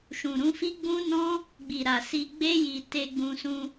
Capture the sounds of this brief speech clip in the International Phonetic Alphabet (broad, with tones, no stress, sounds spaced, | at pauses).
ʃ ũ˨ ɾ ũ˨˦ f i˦ ɡ͡b ũ˦ n ɔ̃˦ | ɡ͡b i˨ ɾ a˨ s i˧ ɡ͡b e˦ j i˧ t e˧ ɡ͡b ũ˧ s ũ˧